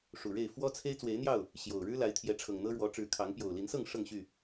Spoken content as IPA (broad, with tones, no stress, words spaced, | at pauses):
ʂu˨˩ɻe˥˨ɪ̯ fwɔ˦t͡sʰe˦ɪ̯ t͡swe˨˦ɪ̯n̪jɑ˥˨ʊ̯ | ɕjo˨˩ʊ̯ ɻɻ̩˦la˨˦ɪ̯t̪ʰjɛ˨˦ ʈ͡ʂʰɤ˨˩ŋn̪ɤ˦ɻwɔ˨˦ ʈ͡ʂɻ̩˨˦kʰɑ˨˦ŋ pjo˨˩ʊ̯li˨˦nsɤ˥˨ŋ ʂɤ˥˨ŋɕy˥˨